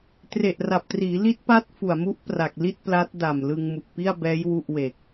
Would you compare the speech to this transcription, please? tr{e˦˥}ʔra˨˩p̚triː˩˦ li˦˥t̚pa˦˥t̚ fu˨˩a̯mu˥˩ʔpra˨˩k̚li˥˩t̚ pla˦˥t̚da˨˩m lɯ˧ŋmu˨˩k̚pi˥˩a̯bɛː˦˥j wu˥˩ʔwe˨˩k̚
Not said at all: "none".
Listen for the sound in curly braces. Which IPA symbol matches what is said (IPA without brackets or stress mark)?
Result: e˨˩